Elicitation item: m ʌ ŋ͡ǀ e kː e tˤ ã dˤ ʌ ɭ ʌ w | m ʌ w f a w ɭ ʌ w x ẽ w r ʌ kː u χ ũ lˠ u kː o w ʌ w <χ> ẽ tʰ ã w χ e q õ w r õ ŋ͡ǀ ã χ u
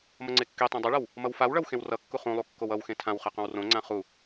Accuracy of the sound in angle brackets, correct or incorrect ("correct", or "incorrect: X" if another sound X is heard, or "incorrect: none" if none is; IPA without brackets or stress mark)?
incorrect: x